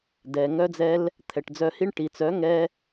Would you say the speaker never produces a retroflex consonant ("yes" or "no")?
no